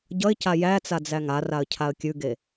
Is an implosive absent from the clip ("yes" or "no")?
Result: yes